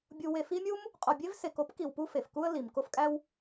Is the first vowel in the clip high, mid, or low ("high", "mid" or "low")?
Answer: high